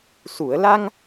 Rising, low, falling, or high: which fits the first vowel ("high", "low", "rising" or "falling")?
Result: low